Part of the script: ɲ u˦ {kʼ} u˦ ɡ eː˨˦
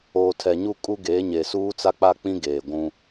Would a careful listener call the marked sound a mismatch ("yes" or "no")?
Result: no